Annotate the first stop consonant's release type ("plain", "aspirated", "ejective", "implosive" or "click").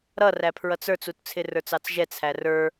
aspirated